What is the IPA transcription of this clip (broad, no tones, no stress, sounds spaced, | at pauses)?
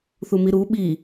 θ u m i ɾ u ɓ i